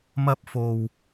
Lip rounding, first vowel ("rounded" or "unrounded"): unrounded